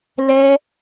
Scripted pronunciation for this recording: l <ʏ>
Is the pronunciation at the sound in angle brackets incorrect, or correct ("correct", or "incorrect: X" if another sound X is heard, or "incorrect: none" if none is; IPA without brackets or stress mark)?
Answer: incorrect: ɛ